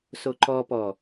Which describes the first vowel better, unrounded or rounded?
rounded